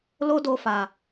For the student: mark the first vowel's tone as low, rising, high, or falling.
high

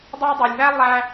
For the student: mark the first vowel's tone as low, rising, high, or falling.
high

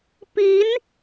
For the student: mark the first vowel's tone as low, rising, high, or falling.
rising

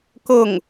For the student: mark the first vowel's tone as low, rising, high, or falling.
falling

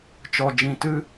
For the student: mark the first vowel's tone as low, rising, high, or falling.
low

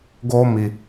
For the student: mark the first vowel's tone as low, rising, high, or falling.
high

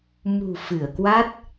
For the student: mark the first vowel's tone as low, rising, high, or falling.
low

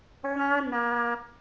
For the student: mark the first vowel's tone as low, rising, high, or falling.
high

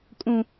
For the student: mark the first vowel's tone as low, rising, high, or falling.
low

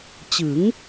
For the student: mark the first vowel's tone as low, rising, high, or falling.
rising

